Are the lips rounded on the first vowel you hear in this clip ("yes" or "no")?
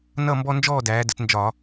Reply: no